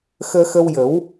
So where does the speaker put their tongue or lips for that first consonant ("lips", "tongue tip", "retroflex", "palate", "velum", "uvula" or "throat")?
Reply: velum